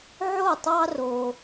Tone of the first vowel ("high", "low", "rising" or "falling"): falling